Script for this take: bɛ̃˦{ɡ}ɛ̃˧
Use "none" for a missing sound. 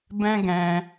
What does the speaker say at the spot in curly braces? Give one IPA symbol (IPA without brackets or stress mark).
ɡ